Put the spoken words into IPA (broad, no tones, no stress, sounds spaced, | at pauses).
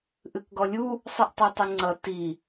ʔ ɨ k ɡ ɔ lʲ u | sˤ ɨ ʔ tˤ o tˤ ɨ ŋ͡ǀ ʌ t i